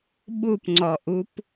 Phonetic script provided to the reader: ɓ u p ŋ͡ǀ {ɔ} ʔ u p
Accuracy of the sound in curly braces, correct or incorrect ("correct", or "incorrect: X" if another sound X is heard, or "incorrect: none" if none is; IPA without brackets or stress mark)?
correct